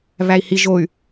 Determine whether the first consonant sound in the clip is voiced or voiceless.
voiced